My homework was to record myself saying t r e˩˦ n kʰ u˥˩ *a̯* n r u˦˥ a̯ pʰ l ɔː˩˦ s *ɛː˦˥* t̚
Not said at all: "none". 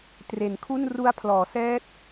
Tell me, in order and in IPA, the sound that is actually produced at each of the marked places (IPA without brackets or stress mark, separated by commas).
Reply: none, ɛː˦˥